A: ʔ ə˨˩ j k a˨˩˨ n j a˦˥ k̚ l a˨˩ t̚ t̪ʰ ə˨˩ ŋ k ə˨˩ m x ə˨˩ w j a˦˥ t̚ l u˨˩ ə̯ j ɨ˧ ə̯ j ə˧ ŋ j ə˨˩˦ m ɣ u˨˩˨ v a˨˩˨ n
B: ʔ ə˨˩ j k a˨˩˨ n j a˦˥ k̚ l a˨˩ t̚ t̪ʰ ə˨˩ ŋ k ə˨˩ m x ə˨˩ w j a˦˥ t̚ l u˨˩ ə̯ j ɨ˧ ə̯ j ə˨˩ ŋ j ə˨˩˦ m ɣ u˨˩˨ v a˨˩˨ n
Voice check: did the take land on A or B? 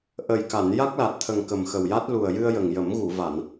B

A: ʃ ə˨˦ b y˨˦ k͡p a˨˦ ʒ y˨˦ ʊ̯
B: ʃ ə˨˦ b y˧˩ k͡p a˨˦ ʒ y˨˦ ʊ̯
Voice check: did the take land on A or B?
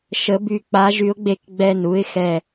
B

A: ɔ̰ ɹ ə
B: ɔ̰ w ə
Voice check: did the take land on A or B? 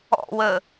B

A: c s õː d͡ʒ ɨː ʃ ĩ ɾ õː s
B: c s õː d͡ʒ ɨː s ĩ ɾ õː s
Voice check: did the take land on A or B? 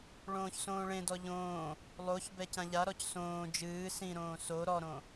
B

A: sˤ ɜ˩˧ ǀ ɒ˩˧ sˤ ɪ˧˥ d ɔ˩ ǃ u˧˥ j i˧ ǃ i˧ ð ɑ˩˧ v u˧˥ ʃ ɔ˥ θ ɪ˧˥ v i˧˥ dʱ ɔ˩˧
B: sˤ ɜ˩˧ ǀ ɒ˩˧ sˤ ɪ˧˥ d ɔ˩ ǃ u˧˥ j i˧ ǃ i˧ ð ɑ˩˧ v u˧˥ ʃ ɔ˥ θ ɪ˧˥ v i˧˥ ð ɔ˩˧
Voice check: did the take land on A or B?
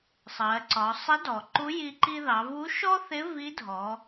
A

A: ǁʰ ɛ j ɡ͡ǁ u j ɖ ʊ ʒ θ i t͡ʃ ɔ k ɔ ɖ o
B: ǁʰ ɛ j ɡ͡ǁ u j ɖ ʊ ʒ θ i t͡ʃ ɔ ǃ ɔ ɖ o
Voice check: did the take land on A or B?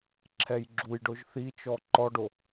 B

